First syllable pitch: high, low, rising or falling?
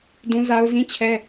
high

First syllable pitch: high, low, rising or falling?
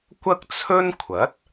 high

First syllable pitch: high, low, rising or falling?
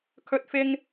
high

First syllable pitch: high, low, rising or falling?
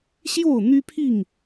falling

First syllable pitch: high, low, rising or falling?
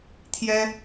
high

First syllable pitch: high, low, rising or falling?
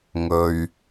low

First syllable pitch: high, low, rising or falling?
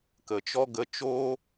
low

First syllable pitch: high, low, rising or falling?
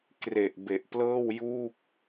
low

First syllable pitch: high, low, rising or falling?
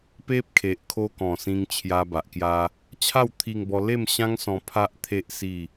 high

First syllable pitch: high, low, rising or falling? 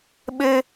high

